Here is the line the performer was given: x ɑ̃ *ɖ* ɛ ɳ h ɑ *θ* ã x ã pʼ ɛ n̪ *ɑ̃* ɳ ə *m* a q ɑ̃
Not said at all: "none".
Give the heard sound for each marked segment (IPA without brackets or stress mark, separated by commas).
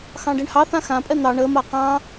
ɖ, θ, ɑ, m